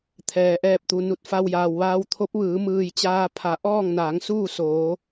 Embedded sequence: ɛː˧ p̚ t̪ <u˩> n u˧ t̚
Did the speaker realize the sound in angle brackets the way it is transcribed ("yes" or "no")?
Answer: yes